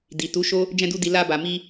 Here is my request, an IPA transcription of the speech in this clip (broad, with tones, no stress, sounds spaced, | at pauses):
d i˨ t u˨˦ ʃ o˦ | d͡ʒ ɛ̃˧ d u˧ d i˨ l a˧ b a˨ m i˧